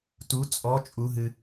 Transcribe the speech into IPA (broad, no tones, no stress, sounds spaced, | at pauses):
t u t͡sʼ ɔ t͡ʃʼ u ɦ ɨ